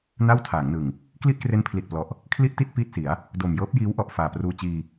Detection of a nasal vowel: absent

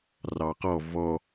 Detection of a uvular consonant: present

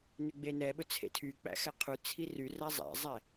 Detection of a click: absent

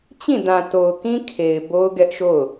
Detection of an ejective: absent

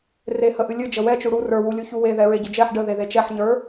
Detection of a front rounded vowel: absent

